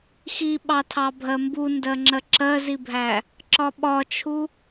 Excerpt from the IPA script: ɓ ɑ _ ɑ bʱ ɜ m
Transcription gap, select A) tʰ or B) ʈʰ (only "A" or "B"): A